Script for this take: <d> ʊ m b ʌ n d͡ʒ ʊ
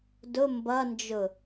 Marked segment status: correct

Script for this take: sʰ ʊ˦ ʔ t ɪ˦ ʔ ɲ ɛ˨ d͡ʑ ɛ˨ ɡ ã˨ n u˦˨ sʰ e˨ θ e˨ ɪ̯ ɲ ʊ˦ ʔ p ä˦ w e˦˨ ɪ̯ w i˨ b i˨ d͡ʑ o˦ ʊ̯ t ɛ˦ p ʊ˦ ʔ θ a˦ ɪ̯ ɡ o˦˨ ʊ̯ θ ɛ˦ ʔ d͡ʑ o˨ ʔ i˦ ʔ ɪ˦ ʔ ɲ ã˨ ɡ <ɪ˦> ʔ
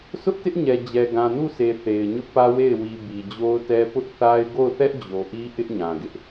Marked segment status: correct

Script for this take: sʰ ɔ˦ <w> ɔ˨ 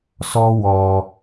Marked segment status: correct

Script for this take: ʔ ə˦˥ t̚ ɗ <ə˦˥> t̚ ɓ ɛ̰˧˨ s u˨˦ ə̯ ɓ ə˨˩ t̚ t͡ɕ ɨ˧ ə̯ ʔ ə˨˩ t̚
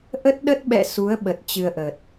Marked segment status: correct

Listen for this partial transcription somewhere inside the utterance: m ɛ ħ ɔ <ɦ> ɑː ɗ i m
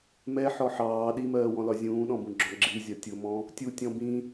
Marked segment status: incorrect: ħ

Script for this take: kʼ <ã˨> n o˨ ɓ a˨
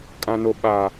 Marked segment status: correct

